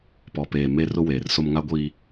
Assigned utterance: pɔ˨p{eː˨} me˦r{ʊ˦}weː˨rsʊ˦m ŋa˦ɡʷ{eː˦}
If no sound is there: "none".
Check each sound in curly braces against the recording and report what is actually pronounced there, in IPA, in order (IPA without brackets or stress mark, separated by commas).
eː˨, ʊ˦, iː˦